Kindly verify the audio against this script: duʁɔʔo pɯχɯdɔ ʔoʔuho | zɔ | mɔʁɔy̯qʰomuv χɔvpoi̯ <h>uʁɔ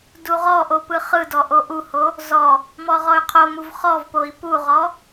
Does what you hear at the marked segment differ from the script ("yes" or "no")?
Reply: yes